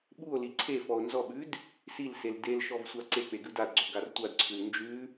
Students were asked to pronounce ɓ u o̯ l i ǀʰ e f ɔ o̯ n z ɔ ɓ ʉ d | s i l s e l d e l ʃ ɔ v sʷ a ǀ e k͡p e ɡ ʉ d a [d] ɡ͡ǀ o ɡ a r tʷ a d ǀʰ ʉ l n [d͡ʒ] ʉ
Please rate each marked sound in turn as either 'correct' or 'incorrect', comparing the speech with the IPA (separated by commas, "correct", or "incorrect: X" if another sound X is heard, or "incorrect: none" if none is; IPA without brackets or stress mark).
correct, correct